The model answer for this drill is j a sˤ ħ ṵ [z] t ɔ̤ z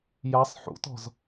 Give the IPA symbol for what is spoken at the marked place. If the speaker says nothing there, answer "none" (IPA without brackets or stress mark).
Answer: none